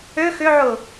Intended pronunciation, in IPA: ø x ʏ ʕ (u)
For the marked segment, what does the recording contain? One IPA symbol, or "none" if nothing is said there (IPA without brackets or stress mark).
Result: ʊ